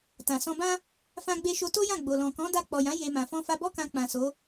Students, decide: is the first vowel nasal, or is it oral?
nasal